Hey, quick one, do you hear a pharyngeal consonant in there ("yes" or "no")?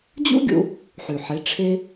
yes